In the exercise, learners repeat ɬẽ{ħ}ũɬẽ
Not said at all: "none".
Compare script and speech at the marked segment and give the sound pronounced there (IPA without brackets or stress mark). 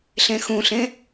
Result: x